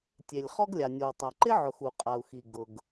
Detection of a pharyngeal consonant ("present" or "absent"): present